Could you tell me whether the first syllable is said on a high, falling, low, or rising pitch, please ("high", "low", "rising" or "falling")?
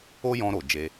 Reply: high